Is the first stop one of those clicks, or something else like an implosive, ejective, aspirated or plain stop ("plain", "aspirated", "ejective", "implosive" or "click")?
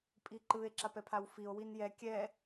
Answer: ejective